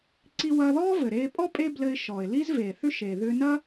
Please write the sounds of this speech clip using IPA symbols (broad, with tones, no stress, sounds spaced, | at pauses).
ǀ i˧ w ɐː˧ ð ɔː˥ v ɘ˩ ɾ eː˧ pʼ ɔ˥ pʼ e˥ b l ɘ˧ ɪ̯ ʃ ɔː˩ ɪ̯ l i˥ z v eː˩ θ ʏ˧ ʃ eː˩ ð ʏː˧ n ɐ˥